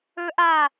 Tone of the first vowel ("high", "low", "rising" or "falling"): high